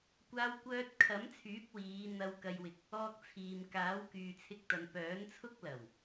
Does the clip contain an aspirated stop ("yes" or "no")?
yes